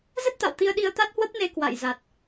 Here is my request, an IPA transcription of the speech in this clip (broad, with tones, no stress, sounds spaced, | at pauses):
z ə˦˥ t̚ t̪ a̰˧˨ w t̪ i˧ ə̯ ɗ i˧ ə̯ t̪ a˦˥ t̚ h w ə˦˥ p̚ n e˧ k w a̰˧˨ j z a˨˩ t̚